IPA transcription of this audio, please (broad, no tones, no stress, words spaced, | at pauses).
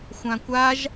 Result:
xʷãkʷaʒ